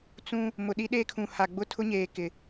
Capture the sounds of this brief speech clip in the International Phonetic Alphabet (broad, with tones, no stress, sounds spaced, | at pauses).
t͡s ũ˦ | m ʊ˨ ɗ i˦ ɗ eː˦ kʰ ũ˨ h a˨ ɡ͡b ʊ˦ tʰ ʊ˦ ɲ eː˨ k ɪ˨